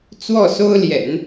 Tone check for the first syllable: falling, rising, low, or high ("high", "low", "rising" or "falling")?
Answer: falling